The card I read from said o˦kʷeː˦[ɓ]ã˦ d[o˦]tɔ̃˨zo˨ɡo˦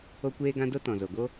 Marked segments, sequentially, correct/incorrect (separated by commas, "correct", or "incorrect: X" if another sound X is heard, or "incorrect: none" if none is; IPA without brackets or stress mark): incorrect: ɡ, correct